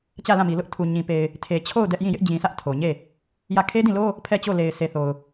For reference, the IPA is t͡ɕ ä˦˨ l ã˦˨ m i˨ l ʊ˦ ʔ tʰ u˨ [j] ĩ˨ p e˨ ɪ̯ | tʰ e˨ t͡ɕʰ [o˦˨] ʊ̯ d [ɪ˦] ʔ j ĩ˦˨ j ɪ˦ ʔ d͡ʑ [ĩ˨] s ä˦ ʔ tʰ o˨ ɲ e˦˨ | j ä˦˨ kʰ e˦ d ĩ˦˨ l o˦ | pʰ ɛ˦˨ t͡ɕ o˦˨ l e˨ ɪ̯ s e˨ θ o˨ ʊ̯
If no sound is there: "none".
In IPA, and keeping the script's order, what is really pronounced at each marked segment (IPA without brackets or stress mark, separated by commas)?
ɲ, o˦˨, ɛ˦, ĩ˨